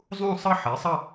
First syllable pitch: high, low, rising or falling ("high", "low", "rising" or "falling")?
falling